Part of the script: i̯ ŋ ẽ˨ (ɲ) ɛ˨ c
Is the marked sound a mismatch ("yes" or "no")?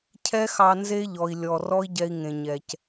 no